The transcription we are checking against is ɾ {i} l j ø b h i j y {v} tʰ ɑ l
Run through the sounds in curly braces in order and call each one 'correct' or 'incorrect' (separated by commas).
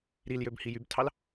correct, incorrect